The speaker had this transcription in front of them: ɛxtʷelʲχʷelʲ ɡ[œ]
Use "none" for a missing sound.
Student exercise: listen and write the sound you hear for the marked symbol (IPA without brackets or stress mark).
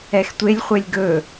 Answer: ɵ